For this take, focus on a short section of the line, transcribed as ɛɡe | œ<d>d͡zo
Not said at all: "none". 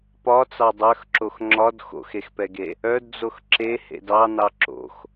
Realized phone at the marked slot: d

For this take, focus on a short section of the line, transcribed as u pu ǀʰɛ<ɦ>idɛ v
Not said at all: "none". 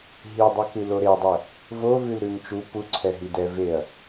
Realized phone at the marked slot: ɦ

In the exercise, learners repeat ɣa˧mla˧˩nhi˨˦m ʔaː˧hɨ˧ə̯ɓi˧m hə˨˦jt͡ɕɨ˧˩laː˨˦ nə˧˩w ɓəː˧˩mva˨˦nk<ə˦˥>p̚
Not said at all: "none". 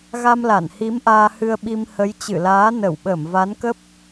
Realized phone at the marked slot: ə˦˥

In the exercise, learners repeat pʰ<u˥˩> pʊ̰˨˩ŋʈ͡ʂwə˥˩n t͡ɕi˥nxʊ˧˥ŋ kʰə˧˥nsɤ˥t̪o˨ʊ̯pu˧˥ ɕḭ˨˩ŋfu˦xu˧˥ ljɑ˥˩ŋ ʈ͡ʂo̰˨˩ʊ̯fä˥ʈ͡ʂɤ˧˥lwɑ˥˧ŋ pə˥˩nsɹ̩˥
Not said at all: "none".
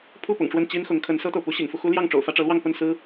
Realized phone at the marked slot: u˥˩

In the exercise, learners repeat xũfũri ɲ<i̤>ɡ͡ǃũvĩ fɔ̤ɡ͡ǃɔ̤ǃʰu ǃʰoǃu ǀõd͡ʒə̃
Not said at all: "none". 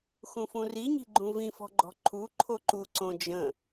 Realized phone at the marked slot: i̤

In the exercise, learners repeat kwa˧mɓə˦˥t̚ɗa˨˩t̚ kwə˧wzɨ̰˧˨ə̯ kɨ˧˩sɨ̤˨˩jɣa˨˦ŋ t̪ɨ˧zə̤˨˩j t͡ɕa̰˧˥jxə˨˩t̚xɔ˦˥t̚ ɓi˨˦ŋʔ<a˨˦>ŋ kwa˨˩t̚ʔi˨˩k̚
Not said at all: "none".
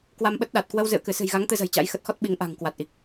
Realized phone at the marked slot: a̤˨˩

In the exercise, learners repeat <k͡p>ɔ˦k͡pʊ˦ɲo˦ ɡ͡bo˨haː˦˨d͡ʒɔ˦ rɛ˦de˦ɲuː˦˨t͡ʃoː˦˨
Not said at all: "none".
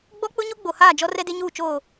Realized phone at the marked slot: ɡ͡b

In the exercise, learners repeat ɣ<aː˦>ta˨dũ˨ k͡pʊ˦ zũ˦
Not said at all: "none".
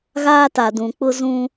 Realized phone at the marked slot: aː˦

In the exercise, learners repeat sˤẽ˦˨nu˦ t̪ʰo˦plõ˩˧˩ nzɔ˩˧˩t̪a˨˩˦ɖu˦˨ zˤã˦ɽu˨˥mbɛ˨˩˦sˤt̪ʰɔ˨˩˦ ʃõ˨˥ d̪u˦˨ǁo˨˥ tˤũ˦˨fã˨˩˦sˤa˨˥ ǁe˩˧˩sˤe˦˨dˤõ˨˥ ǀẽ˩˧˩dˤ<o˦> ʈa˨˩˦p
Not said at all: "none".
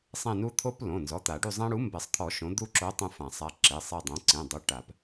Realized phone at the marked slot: o˨˥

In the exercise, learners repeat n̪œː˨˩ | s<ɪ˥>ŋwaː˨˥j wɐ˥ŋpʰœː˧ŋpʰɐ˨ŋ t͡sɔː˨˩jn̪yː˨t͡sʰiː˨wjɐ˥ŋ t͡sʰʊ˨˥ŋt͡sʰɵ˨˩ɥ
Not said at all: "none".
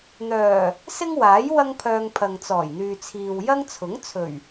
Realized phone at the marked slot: ɪ˥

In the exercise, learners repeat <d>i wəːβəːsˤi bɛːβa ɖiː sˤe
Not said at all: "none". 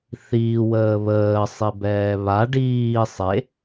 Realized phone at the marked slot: θ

